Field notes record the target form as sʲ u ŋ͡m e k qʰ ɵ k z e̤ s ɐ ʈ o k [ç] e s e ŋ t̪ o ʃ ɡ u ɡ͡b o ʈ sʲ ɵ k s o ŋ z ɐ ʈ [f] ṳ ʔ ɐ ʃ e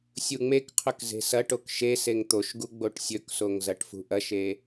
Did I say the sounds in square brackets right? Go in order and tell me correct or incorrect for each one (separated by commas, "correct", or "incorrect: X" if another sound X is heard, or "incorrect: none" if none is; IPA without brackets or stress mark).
incorrect: ʃ, correct